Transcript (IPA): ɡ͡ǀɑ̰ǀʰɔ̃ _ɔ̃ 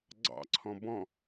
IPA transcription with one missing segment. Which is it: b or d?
b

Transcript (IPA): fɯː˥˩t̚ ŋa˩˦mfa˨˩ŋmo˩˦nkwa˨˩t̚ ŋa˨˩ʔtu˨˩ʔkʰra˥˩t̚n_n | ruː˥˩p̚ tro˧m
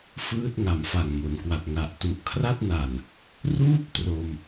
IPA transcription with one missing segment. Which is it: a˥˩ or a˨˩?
a˨˩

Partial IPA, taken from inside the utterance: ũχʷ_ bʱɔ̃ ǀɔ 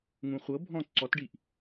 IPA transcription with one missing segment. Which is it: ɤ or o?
ɤ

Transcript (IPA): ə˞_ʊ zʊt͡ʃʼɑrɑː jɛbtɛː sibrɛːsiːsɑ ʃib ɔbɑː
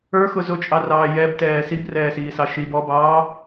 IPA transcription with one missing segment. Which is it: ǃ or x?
x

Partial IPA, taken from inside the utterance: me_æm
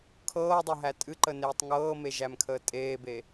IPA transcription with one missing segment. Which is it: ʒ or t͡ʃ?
ʒ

